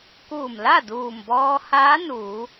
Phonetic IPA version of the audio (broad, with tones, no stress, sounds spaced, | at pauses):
k uː˧˩ m l a˥˨ d uː˧˩ m b ɔː˧ h aː˧˥ n uː˩˧